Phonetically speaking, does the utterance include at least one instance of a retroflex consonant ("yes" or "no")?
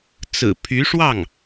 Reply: yes